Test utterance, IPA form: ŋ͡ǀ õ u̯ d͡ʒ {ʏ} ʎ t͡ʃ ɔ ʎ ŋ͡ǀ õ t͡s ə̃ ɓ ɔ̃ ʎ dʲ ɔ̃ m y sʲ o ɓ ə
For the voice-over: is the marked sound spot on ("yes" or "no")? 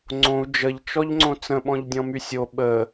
no